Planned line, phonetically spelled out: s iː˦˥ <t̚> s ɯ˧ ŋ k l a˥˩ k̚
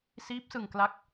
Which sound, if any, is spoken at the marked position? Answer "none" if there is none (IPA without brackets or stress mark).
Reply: p̚